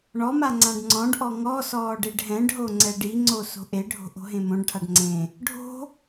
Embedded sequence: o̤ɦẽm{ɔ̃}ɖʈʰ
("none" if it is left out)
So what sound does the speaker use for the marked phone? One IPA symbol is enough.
õ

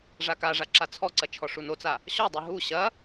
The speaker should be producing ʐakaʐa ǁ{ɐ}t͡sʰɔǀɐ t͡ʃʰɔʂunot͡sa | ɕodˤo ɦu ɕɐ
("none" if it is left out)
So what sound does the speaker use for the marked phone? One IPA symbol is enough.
a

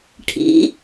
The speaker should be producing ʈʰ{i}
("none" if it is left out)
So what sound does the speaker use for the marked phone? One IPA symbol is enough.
ḭ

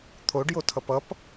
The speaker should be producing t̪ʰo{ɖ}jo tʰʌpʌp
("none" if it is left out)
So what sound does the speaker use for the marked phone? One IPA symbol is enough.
ɖ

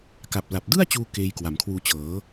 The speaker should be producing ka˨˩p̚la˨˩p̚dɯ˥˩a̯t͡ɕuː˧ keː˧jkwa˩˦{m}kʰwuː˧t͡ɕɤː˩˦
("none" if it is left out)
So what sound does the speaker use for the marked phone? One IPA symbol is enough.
m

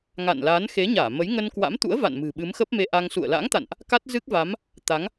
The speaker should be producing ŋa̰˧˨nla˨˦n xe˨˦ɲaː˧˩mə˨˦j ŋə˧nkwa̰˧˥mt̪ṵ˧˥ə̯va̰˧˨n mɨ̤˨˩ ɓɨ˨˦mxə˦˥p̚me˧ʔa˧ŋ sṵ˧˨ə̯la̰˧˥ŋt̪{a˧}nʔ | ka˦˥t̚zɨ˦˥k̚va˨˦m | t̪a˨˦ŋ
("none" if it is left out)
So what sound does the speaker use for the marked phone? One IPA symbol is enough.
a̰˧˨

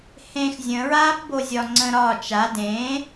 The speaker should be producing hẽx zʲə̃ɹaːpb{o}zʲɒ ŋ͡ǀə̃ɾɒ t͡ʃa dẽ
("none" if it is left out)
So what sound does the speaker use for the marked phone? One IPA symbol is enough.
o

